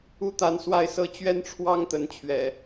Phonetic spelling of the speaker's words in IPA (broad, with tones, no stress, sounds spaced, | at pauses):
u˦ t̪ a˨˦ n s w a˥˨ ɪ̯ s ɤ˦ t͡ɕ ɥ ɛ˦ n ʈ͡ʂʰ w ɑ˦ ŋ t̪ ə˨˦ n t͡ɕʰ ɥ ɛ̰˨˩